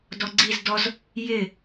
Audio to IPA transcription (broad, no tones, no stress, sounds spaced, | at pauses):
d ɔ ɡ͡ǀ i z d ɔ z | j ɪ